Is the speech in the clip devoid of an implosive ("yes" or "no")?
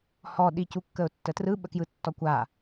no